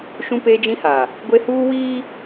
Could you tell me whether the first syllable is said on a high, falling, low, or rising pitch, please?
high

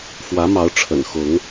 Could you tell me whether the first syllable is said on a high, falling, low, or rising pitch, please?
rising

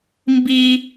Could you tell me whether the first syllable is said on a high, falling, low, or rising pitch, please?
high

